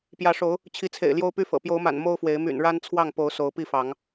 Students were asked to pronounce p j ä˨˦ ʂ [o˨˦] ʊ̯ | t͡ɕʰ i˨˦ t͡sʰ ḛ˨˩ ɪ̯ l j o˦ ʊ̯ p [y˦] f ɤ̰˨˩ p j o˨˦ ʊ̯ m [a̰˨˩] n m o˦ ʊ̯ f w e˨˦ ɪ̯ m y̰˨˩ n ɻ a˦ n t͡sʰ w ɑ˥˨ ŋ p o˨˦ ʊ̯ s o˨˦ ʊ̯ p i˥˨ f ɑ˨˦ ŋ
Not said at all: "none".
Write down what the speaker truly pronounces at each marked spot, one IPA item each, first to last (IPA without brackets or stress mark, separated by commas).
o˨˦, y˦, a̰˨˩